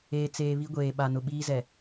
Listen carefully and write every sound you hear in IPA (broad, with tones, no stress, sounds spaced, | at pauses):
eː˨ t͡s eː˨ β i˦ ɡʷ eː˨ ɓ a˨ n ʊ˨ ɓ iː˦ z ɛ˨